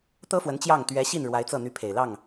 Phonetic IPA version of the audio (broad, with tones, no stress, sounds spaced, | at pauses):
t̪ ɤ˥ f w ə˧˥ n t͡ɕ j ɑ˥˩ ŋ t̪ ɥ ɛ˧˥ ɕ i˥˩ n ɻ w a˧˥ ɪ̯ t͡s ɤ˥˩ n̪ y˧˥ pʰ e˨˩ ɪ̯ l ɑ˥˩ ŋ